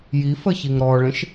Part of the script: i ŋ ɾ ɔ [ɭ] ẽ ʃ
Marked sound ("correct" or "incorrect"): correct